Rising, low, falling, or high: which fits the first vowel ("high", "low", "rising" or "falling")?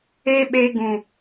high